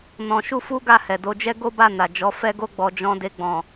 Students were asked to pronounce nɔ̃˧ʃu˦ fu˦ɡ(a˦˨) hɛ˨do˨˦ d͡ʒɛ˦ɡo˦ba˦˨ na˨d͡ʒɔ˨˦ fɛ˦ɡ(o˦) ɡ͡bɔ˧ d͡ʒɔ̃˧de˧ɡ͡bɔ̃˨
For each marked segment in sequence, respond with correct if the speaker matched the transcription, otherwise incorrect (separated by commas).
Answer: correct, correct